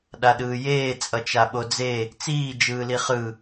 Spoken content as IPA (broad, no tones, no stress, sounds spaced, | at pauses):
ɗ a ɗ ɯː j eː t͡sʼ ʌ t͡ʃ a ɓ o d͡z e | t͡s iː d͡ʒ ɯː l i χ ɯ